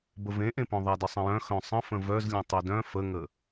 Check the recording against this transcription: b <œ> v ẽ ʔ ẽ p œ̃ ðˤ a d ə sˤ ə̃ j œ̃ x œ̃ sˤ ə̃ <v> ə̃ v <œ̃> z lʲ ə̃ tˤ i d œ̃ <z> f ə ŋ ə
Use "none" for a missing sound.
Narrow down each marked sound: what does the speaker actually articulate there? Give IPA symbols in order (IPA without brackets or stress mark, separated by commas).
ə, f, œ, none